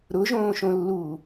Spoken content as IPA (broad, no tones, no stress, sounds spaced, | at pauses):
ɾ ʊ ʒ õː ʃ õ lː uː